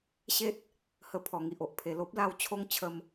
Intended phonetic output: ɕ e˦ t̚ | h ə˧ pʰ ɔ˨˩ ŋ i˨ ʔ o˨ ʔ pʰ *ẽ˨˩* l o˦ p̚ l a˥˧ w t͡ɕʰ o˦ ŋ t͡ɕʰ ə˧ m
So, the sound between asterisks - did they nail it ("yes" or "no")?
no